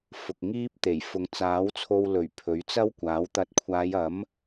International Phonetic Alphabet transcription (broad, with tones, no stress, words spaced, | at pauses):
fʊ˨k̚ŋiː˥p̚t̪e˨˩jfʊ˨˧ŋ t͡saː˨˥wt͡sʰo˧w lɵ˨˩ɥ pʰɵ˨˥ɥt͡sɐ˥wkʷaː˨˥w t̪ɐ˨˥t̚kʷʰaː˨˧jɐ˨˥m